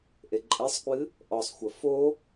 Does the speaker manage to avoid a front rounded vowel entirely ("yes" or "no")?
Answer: yes